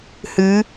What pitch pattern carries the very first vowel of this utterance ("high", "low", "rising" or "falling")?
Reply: rising